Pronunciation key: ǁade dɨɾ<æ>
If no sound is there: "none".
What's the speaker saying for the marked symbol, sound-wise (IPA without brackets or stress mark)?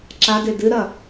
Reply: ɐ